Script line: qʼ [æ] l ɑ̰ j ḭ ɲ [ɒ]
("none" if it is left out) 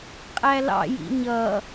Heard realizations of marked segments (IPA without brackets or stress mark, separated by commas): æ, ʌ